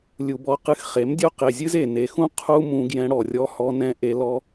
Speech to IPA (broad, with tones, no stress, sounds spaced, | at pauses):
lʲ u˨ b ɔ˧ q ɨ˧ x χ e˨˦ m dʲ o˦ q e˨ zʲ ɨ˦ z e˨ n e˨ x ũ˦ qʰ u˦ m ũ˧ ɡ j ɛ̃˧ ɽ ɔ˨ rʲ ɔ˧ h ɔ˧ n ɛ̃˧ ʔ e˧ l ɔ˧